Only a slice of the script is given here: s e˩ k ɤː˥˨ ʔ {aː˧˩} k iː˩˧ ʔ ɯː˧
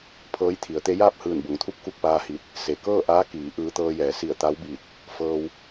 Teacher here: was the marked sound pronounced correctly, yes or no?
no